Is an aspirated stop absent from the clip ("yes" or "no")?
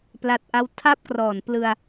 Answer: no